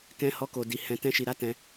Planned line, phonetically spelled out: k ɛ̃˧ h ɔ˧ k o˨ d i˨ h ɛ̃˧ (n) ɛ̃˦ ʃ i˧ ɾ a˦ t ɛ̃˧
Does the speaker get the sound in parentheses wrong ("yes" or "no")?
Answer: yes